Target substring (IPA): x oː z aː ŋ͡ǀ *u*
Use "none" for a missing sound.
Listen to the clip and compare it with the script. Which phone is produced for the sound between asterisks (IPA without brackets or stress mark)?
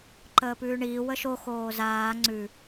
ʉ